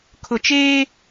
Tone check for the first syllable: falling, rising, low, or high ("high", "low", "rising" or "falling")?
low